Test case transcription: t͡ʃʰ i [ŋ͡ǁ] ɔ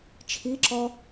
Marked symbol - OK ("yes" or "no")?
no